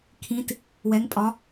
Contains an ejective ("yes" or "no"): yes